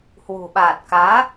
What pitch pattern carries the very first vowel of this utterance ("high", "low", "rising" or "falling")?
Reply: low